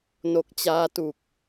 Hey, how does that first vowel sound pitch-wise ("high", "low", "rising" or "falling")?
low